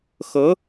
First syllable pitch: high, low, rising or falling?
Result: rising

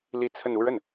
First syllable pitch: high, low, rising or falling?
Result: falling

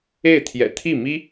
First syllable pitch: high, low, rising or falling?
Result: falling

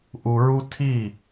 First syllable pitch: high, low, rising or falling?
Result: low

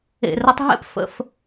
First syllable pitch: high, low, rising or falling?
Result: low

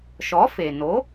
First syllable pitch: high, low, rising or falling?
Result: rising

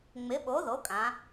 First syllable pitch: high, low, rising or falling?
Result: rising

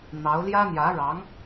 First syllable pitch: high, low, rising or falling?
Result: rising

